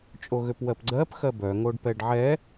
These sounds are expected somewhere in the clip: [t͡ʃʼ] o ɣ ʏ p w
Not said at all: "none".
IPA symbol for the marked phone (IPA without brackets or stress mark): t͡ʃʼ